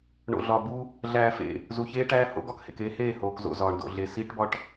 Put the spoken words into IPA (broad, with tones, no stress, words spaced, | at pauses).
ɳo̰˨ɮɒ˨bu˦ | ɮæː˨fḛ˨ | zu˨çeː˦ʈæː˦ ho̰˦ɡɒ˦khḛ˨keː˦ heː˦˨hoː˨kzo̰˨ zɒː˨ɳdo̰˨ɮe˨ siː˦ʈbɒ˦ʈ